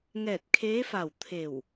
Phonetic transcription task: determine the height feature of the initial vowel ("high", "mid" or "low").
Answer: mid